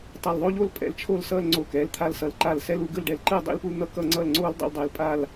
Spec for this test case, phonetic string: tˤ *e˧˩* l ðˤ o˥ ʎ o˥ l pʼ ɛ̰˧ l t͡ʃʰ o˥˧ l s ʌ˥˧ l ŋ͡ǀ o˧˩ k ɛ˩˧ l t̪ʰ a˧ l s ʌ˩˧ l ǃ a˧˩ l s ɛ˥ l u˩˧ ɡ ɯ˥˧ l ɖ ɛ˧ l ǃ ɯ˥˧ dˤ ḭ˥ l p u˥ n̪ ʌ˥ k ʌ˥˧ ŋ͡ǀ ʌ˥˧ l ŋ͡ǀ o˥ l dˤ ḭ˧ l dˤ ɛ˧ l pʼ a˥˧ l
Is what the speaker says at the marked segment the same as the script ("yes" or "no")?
yes